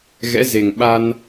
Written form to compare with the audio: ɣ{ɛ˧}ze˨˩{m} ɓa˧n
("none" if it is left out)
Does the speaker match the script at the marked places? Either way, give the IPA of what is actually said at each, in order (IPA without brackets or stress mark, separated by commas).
ɛ̰˧˥, ŋ